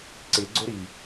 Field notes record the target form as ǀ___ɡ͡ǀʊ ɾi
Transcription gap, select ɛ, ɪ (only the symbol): ɪ